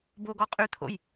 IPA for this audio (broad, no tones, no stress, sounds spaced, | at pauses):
b o ɡ ɔ qʼ y t̪ʰ o̰ j